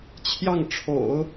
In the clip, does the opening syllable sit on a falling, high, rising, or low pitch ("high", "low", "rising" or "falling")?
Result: falling